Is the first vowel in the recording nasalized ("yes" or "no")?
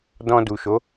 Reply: yes